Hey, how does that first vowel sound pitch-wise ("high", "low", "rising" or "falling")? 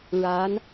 rising